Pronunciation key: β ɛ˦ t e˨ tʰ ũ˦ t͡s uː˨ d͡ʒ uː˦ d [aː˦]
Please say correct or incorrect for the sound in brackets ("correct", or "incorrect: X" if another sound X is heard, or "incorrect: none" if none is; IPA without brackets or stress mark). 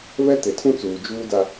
incorrect: a˦